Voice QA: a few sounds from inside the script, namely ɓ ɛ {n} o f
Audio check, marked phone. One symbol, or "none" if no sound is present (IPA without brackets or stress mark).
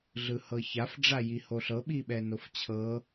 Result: n